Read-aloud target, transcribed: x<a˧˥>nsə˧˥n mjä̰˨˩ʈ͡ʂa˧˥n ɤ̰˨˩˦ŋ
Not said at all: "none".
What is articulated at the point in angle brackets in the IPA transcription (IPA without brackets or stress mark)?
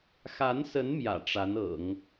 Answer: a˧˥